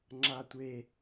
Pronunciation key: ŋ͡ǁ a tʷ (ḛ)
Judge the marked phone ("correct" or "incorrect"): incorrect